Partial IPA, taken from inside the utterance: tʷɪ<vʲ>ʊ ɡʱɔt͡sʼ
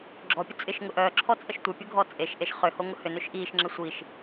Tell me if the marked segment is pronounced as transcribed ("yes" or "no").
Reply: no